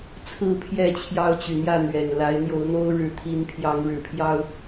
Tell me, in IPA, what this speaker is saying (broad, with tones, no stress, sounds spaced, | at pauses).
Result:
t͡sʰ ɹ̩˥˨ pʰ j ɛ˥˨ t͡ɕʰ j ɑ˦ ʊ̯ t͡ɕ y˨˩ n̪ j ä˥˨ n̪ ɥ ɛ˨˩ n l a˨˦ ɪ̯ n̪ j o˨˦ ʊ̯ n̪ o˦ ʊ̯ ɻ ɻ̩˨˦ t̪ʰ i˨˦ n pʰ j ɑ˨˦ ŋ ɻ ɻ̩˨˩ pʰ j ɑ˦ ʊ̯